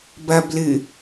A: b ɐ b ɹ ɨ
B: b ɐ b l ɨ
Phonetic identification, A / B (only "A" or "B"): B